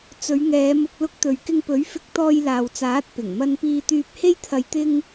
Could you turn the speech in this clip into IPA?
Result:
t͡s ɵ˨˧ ɥ ŋ ɛː˨˧ m ʊ˧ k̚ l ʊ˧ k̚ t̪ ɵ˨ ɥ k ɪ˧ ŋ p ɵ˨˥ ɥ f ɪ˧ k̚ t̪ ɔː˧ j l aː˨ w t͡s aː˨˥ t̚ p ɪ˨˩ ŋ m ɐ˧ n p iː˧ t̪ yː˧ p̚ h e˥ j t̪ʰ ɐ˧ j t̪ ɪ˥ ŋ

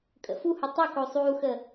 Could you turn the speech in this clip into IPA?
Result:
kʼ ə̰ f u h u tˤ ə k o sˤ uː x ə

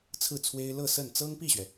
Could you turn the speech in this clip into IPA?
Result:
t͡sʰ ɹ̩˥˩ t͡sʰ w e˥ ɪ̯ l ɤ˥˧ s ə˥˩ n t͡s ɤ˥ ŋ p i˥˩ ɕ ɥ ɛ˩

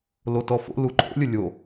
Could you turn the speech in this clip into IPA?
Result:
l o t ɔ f o̰ l u ǃʰ o̰ lʲ ə lʲ o

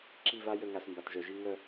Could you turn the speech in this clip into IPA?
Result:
ǁ i˦˨ v a˦ j ə˦˨ ŋ a˨ s m b a˨ t ʒ œ˨ ʒ i˦ ŋ œ˦˨

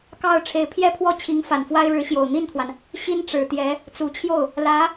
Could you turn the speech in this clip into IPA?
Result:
k ɑ˥˩ ʊ̯ ʈ͡ʂʰ e˧˥ ɪ̯ pʰ j ɛ˥ pʰ w ɔ˥ t͡ɕʰ i˧˥ ŋ f a˨˩ n f w a˥ ɪ̯ ɻ ɻ̩˧˥ ɕ j o˨˩ ʊ̯ n̪ i˥˩ n t̪ʰ w a˩ n | ɕ i˥ n ʈ͡ʂ ɻ̩˨˩ t̪ j ɛ˧˥ | t͡s u˨˩ t͡ɕʰ j o˥˩ ʊ̯ | l ä˧˥

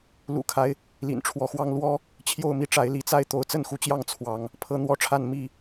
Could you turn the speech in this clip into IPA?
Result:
l ṵ˨˩ kʰ a˦ ɪ̯ | l ḭ˨˩ n ʈ͡ʂʰ w ɔ˨˦ x w ɑ˦ ŋ l w ɔ˦ | t͡ɕʰ j o˥˨ ʊ̯ m i˦ ʈ͡ʂ a˨˦ ɪ̯ l i˨˦ t͡s a˦ ɪ̯ t̪ o˨˦ ʊ̯ t͡s ə˥˨ n x u˨˦ t͡ɕ j ɑ˥˨ ŋ t͡sʰ w ɑ˨˦ ŋ | pʰ ɤ˦ n̪ w ɔ˦ ʈ͡ʂʰ a˥˨ n m i˥˨

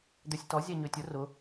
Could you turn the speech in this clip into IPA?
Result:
d̪ ø sʲ t ɔ zʲ ɛ ɲ ø tʲ ʊ r ʊ

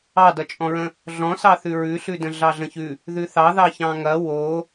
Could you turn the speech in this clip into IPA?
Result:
ɑ d ʌ t͡ʃʼ ɔ̃ ɹ ə̃ | ɮ ɔ̃ s ɑ θ ʉ ɹ ʉ ɬ ʉ d ə̃ ɮ ɑ ɮ ə̃ ç ʉ | ð ʉ θ ɑ ð ɑ ç ɑ̃ ŋ ɐ w o

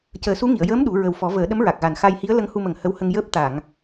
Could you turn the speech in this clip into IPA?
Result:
c əː˨˩˦ s u˧˥ ŋ i˨˩˨ ə̯ j əː˧˥ m ɗ u˨˩˦ ɹ ə˨˩ w f ɔ˨˩˦ v əː˨˩˦ ɗ ə˧˥ m ɹ a˨˩ k̚ ɣ a˨˩ n x a˧ j h i˧˥ ə̯ l ə˧˥ ŋ h u˧ m ə˨˩ ŋ h ə˧˥ w h ə˧ ŋ j əː˦˥ p̚ t̪ a˨˩˨ ŋ

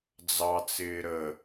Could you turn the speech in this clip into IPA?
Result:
d͡z ɑ t͡s ɪː ɾ ə

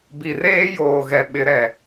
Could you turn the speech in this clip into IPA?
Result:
b i˨ r eː˦ j oː˨ ɣ ɛ˨ ɓ ɪ˨˦ ɾ ɛ˨

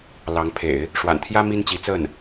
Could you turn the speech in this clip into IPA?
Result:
l ɑ˧˥ ŋ pʰ ḛ˨˩˦ ɪ̯ | ʂ w a̰˨˩ n t̪ʰ j ä˥ m i˥ n t͡ɕ i˧˥ t͡s ə˥˩ n

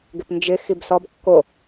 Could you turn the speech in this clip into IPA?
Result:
ɡ ɪ p n d͡ʒ ɪ x i b s ɔ b kː o

